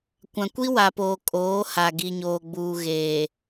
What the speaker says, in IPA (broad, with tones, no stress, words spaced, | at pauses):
kʷã˨kʷi˦wa˨poː˨ kʼoː˨˦ ha˨ɡi˨ɲoː˨ɡ͡buː˨ ɣeː˨